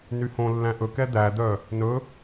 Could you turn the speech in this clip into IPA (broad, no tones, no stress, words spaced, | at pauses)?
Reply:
nyhõ lːæ̃ʔɵkɛ d̪æd̪œ | nɵ